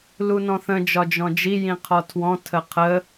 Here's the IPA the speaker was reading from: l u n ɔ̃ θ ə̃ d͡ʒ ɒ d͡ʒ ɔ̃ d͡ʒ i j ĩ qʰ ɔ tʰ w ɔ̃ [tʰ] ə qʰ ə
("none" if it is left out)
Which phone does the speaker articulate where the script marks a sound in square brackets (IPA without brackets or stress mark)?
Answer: tʰ